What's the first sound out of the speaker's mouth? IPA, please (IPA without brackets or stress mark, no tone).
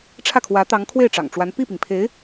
ʈ͡ʂʰ